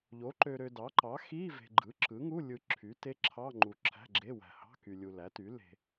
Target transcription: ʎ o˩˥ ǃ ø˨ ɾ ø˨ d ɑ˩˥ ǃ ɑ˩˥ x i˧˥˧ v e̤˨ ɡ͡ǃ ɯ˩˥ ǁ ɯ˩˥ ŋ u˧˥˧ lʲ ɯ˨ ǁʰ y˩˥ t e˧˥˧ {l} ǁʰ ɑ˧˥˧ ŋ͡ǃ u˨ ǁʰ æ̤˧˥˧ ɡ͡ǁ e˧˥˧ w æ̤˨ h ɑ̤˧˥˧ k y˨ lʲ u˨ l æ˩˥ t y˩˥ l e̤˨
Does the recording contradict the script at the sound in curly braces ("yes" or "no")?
yes